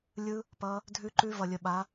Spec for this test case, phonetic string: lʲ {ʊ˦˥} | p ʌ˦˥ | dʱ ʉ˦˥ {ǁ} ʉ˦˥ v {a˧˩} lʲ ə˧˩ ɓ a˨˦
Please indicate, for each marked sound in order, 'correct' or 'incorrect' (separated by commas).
incorrect, incorrect, incorrect